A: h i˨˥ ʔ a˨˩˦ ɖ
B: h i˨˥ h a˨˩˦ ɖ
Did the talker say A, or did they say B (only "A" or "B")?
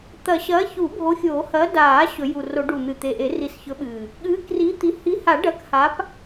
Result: B